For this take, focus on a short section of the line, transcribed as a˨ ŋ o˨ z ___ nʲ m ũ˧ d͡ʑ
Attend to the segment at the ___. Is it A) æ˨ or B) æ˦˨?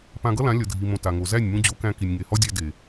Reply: B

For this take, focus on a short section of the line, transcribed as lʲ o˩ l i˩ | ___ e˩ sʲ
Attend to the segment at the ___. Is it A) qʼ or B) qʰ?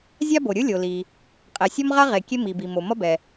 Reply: A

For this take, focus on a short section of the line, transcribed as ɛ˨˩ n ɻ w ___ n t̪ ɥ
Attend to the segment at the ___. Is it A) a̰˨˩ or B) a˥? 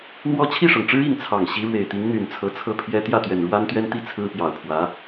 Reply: B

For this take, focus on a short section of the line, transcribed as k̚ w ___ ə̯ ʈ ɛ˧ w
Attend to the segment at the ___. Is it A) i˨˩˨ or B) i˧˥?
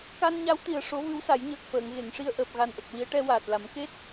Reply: B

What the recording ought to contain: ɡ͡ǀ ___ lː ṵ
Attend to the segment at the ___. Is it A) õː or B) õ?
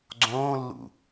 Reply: A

